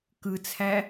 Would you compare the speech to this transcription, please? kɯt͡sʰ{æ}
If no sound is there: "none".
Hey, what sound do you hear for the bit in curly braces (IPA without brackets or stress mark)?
æ